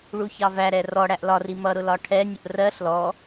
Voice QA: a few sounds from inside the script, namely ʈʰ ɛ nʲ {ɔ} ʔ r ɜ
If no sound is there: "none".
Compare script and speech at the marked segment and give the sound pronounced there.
ʊ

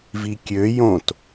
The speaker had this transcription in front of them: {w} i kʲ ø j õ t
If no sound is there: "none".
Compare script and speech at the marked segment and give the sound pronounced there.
v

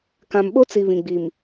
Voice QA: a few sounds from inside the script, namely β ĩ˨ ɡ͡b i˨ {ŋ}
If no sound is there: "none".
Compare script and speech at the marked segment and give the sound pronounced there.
m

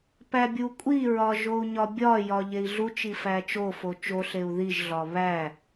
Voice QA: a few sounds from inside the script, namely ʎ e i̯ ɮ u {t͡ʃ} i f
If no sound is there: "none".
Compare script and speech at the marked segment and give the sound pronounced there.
t͡ʃ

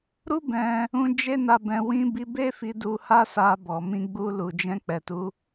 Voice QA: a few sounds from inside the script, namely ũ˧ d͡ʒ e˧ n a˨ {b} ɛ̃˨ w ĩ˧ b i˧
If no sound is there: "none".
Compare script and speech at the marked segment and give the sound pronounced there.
b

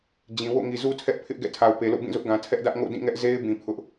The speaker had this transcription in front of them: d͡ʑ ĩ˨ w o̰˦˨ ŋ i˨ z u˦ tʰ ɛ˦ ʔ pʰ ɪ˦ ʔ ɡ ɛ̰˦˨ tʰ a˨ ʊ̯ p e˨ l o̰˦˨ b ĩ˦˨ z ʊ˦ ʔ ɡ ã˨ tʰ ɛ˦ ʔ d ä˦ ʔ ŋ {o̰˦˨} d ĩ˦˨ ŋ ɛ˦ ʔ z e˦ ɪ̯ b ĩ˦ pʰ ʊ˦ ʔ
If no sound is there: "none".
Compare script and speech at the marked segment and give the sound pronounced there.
o̰˦˨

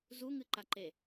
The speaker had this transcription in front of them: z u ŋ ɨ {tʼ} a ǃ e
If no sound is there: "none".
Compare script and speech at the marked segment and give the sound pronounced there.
ǃ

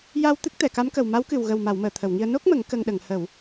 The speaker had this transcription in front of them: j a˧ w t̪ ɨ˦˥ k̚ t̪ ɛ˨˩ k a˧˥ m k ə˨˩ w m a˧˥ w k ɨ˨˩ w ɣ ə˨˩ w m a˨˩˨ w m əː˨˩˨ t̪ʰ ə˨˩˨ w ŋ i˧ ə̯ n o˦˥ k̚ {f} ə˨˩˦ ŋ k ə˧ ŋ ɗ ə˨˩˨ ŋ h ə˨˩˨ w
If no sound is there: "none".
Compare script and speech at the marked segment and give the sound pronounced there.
m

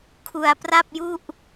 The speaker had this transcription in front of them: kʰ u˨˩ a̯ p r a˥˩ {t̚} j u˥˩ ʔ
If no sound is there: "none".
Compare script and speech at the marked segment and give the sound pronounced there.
p̚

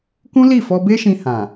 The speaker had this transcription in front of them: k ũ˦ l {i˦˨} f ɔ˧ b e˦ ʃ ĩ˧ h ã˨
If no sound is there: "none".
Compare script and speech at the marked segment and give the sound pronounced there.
i˦˨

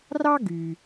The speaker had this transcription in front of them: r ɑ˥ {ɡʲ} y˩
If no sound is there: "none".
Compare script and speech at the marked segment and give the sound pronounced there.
ɡ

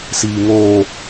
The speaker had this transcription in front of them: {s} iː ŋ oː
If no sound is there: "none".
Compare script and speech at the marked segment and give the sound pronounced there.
s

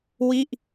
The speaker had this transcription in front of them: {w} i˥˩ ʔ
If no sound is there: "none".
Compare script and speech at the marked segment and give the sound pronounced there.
w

